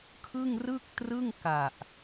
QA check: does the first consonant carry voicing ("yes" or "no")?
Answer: no